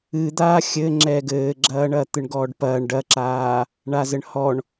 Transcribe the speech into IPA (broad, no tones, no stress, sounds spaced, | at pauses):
ɨ d̪ aː xʲ ɘ ŋ͡ǁ ɛ ɡ ɘː ɡ͡ǁ ɐː ɳ ɐ t̪ ɨ ɳ ɡ ɔː ɖ p ɐː ɳ ɖ ɐ ǁ aː | ɳ a z ɘ ɳ h ɔ ɳ